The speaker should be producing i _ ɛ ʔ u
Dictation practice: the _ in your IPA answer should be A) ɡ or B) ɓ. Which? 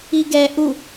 A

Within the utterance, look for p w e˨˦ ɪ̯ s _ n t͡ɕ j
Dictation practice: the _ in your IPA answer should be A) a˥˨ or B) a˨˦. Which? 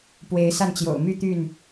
A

